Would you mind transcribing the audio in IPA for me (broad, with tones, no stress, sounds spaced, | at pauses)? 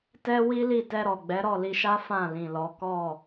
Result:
t ɛ˦ w i˦ l i˦˨ t ɛ˧ ɾ ɔ˨ ɡ͡b ɛ˨˦ ɾ ɔ˦˨ l i˧ ʃ a˦ f ã˦˨ l ĩ˨ l ɔ˨˦ k ɔ˦˨